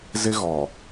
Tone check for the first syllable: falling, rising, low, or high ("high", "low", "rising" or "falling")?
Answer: high